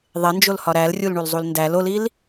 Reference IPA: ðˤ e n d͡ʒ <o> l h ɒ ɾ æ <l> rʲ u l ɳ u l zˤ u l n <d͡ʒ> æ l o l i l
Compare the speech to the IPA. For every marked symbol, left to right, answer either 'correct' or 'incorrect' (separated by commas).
correct, correct, incorrect